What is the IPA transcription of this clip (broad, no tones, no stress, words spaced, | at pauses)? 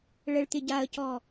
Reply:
ɭəɭt̪ɪ ɟaə̯cɔ